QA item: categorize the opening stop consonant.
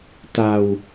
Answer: plain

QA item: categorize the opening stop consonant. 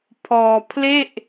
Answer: aspirated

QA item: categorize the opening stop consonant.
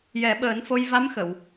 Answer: implosive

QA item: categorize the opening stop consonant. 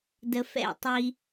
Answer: plain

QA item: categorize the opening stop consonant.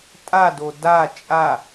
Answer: ejective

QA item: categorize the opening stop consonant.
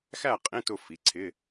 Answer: ejective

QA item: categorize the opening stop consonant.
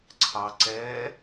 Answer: click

